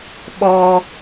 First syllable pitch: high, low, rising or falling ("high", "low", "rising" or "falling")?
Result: high